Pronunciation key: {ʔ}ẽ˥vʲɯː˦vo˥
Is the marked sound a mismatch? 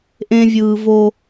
no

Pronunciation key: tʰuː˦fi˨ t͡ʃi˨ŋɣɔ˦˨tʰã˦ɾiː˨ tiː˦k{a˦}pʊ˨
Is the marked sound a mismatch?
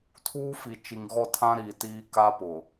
no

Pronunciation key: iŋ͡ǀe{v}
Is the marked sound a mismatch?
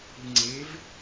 no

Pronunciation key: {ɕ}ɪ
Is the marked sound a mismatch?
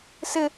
yes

